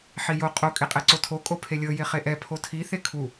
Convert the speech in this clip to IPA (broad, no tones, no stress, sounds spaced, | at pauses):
ħ i j o qʼ o kʼ e qʼ ɛ ǀ o tʰ o kʼ o pʰ e lʲ ɤ j e χ e ʔ ɛ pʰ o tʰ i θ e kʰ u